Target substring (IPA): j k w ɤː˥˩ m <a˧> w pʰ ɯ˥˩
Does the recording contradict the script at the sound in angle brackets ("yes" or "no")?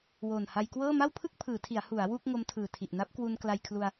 yes